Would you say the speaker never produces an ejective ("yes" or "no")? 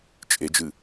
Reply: no